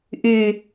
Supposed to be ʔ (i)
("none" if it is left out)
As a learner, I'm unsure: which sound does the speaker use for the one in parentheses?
y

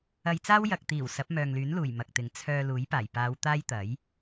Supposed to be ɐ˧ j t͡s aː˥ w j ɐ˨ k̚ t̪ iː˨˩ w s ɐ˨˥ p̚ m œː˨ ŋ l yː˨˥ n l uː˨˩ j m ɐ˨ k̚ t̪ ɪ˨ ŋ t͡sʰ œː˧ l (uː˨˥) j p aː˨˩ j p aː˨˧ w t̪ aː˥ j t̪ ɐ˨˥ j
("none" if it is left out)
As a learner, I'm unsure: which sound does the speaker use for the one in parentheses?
uː˨˥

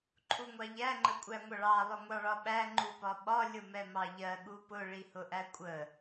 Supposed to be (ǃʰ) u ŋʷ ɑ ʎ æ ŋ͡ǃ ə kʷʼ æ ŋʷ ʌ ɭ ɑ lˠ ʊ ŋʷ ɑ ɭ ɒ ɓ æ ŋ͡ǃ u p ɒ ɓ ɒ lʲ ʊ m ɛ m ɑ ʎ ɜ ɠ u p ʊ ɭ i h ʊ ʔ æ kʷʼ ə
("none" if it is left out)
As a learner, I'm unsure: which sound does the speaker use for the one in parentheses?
ǃʰ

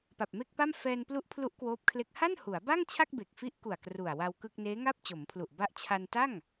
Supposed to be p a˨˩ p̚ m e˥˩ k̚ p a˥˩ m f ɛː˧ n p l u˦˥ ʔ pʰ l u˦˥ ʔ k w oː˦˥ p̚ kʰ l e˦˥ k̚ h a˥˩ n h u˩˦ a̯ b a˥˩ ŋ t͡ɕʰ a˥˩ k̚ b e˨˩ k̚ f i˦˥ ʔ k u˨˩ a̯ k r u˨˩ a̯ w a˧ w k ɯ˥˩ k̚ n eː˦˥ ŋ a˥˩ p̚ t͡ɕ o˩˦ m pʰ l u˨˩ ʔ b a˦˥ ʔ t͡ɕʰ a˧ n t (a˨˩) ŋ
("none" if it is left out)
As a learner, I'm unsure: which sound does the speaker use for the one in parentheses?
a˥˩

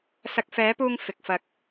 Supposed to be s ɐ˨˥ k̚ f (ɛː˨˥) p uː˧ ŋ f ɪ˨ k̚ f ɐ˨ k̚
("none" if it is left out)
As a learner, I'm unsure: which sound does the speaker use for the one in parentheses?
ɛː˨˥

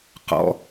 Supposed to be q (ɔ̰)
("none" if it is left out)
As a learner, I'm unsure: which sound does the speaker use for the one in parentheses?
ɔ̰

